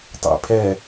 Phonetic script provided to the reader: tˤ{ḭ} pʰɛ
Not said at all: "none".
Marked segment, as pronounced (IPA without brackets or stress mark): ḭ